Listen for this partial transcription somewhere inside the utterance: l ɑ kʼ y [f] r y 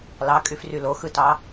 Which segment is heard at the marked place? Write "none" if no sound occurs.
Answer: f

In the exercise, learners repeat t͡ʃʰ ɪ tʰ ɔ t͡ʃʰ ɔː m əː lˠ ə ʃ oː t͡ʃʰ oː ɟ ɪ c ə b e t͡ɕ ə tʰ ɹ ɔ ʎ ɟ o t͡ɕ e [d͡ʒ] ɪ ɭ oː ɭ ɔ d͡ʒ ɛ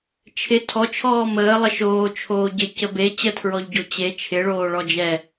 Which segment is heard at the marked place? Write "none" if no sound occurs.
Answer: t͡ʃʰ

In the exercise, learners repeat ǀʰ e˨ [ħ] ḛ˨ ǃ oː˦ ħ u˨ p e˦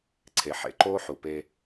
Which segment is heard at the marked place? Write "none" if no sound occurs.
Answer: ħ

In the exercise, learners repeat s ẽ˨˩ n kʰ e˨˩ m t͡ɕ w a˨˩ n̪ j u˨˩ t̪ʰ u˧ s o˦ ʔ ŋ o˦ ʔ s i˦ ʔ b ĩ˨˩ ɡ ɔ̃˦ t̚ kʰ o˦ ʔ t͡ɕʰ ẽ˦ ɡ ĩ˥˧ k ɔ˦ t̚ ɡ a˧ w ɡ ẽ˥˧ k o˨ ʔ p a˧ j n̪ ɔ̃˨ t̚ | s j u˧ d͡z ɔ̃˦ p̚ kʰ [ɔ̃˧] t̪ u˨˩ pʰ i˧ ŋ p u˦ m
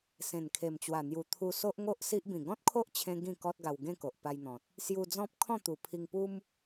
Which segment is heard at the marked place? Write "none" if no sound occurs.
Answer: ɔ̃˥˧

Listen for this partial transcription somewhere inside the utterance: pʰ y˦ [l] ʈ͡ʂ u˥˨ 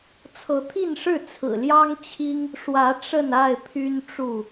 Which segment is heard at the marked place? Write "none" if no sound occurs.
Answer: n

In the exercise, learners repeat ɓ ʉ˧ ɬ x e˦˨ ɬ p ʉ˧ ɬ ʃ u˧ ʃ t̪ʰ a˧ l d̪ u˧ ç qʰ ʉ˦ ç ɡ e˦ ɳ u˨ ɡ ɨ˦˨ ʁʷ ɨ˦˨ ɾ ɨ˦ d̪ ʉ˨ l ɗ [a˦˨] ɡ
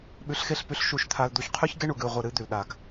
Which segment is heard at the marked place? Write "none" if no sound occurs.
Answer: a˨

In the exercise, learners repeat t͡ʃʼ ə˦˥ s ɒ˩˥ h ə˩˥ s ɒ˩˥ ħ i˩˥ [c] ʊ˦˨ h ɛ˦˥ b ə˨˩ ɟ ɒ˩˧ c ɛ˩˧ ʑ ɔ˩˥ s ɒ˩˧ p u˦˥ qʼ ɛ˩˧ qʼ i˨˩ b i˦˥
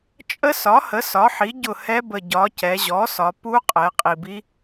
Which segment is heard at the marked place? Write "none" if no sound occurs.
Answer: ɟ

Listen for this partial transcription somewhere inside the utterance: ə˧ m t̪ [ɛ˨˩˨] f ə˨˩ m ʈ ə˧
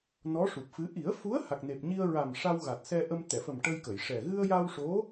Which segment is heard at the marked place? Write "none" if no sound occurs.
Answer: ɛ˨˩˨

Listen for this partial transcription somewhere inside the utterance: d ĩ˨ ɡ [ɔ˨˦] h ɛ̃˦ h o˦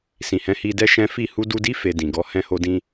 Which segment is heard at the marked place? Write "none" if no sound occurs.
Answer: ɔ˨˦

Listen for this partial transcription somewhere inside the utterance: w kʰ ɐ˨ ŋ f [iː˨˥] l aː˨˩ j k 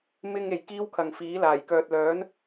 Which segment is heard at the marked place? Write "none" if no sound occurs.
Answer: iː˨˥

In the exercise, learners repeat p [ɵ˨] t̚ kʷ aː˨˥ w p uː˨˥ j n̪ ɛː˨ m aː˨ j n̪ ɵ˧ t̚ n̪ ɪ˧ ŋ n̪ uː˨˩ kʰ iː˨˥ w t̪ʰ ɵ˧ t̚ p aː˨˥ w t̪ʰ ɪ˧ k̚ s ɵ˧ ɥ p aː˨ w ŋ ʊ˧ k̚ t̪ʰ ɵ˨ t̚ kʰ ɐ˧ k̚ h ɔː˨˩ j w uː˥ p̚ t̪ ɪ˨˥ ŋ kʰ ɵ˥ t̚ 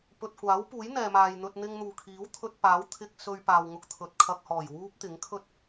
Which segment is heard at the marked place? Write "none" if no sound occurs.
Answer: ɵ˨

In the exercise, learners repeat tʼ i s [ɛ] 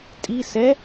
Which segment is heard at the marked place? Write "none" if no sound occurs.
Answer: ɛ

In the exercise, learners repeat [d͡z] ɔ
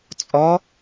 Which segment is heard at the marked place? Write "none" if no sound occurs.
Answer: t͡sʼ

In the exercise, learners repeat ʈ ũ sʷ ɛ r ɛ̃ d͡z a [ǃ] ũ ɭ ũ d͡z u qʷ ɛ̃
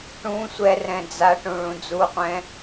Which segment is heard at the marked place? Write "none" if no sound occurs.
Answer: ʈ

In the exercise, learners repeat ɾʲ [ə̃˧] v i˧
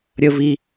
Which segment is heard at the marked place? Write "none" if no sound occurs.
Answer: ə˧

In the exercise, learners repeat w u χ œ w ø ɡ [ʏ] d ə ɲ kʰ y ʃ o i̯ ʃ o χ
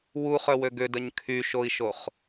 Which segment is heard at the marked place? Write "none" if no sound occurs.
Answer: ʏ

